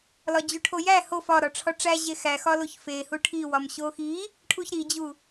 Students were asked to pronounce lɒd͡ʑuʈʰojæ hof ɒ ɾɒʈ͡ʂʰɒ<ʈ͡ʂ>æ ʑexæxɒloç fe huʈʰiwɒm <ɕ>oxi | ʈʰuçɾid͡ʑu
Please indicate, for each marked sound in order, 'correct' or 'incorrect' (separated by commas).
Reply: correct, correct